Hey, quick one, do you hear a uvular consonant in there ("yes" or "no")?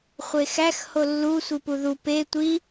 yes